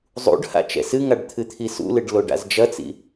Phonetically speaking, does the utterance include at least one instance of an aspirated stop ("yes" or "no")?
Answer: yes